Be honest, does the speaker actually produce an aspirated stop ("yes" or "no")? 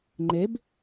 no